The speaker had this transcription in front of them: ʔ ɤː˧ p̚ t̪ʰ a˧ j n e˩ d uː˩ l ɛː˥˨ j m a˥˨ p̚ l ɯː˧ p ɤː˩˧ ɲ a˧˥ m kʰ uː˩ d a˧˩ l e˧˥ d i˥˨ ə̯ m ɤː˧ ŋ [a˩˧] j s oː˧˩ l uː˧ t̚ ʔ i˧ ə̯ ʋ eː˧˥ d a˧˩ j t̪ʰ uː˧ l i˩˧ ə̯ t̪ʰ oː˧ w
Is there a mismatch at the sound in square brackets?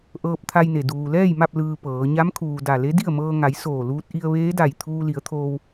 no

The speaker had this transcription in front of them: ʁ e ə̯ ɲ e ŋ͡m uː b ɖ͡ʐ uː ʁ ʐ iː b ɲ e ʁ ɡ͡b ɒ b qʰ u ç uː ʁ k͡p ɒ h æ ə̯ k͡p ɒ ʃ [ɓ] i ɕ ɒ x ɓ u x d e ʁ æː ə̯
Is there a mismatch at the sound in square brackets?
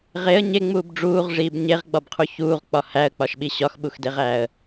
no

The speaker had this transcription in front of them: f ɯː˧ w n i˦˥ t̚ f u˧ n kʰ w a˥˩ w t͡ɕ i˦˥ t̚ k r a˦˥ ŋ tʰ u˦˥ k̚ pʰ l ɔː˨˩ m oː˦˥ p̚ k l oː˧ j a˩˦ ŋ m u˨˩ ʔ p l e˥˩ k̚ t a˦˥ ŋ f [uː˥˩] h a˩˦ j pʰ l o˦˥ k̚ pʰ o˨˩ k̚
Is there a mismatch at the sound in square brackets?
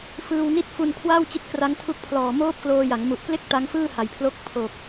yes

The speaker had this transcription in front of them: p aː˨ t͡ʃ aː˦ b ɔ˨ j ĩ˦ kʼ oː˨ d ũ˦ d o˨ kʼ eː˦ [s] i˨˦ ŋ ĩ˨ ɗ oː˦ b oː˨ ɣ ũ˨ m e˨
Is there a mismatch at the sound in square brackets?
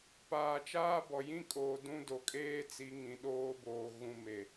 yes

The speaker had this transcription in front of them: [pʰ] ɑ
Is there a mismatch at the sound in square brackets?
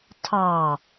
yes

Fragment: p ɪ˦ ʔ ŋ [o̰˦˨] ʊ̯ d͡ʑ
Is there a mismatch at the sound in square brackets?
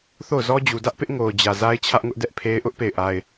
yes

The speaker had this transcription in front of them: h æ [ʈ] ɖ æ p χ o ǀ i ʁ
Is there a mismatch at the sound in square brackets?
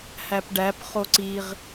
yes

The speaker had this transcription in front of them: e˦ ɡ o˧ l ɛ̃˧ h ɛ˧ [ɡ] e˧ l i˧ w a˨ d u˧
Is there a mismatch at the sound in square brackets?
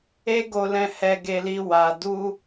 no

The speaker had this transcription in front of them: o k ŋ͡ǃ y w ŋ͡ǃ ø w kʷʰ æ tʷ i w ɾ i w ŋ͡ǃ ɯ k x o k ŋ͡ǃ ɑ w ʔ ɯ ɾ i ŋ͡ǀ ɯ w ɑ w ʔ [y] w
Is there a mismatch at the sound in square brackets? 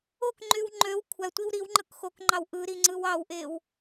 yes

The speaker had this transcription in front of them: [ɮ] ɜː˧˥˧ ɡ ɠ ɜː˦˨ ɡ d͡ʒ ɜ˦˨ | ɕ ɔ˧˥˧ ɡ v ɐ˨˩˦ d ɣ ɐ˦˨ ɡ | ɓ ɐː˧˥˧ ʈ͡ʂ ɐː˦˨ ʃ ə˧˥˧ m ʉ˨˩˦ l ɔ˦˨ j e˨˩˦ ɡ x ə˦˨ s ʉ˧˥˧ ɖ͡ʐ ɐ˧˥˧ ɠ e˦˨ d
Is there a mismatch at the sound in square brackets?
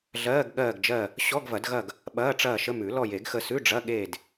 no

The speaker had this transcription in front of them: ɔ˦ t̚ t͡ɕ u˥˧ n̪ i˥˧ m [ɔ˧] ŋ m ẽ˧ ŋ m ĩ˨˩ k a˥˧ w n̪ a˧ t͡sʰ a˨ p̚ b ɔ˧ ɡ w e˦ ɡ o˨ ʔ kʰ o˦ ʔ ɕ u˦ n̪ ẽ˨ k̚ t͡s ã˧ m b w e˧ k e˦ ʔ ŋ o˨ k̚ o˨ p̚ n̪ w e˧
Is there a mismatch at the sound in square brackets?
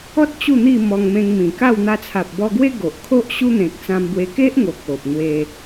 no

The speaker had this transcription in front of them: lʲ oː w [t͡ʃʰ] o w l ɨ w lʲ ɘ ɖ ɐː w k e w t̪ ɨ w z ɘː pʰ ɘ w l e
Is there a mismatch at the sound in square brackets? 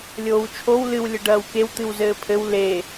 no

